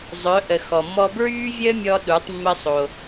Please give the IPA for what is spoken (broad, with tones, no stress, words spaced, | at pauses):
zˤœ˩˧ ʔə˩ xɔ˩mːɔ˧ bɹyː˥vʲəː˥mʲɔ˧ ɗu˩˧tˤmːə˧sˤo˩